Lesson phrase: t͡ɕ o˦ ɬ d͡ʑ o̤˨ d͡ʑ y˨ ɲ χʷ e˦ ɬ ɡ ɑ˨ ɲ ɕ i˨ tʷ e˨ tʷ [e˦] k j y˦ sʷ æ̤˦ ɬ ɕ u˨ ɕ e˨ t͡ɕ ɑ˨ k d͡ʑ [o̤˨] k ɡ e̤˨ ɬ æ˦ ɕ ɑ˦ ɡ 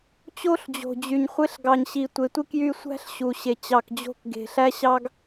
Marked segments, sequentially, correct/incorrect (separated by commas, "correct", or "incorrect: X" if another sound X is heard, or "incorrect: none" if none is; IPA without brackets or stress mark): incorrect: i˦, incorrect: o̤˦˨